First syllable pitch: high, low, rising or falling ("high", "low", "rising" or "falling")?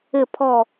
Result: falling